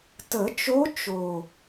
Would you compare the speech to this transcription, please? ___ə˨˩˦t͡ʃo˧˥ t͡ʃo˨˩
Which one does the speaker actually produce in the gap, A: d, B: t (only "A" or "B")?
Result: B